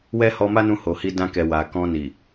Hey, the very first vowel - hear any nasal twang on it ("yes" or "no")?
no